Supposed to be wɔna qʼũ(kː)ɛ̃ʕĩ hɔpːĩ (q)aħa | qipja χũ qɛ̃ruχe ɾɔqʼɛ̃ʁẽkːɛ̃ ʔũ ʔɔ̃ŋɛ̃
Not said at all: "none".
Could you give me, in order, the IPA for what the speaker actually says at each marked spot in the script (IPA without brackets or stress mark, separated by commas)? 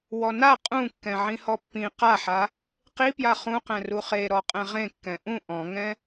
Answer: kː, q